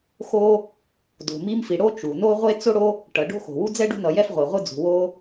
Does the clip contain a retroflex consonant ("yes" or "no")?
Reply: yes